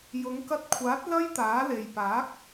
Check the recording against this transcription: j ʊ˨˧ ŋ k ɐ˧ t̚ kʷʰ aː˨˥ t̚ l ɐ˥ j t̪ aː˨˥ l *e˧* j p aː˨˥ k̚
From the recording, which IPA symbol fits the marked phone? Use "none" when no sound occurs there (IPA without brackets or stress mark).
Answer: e˨